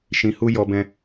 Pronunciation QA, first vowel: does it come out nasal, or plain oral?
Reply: nasal